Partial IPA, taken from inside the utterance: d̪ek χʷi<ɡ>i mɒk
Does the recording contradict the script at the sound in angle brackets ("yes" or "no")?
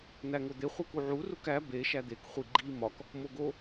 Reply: yes